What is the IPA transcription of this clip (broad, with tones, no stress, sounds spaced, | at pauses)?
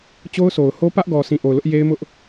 t͡ɕ o˦ ʊ̯ s o˨ ʊ̯ h o˦ p ä˦ ʔ ɡ ɔ˨ sʰ ĩ˨ ʔ o˨ ʊ̯ l ʊ˦ ʔ j e˦ ɪ̯ m ʊ˦ ʔ